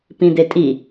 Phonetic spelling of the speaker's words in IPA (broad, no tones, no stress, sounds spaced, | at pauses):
p ĩ d̪ e tʼ i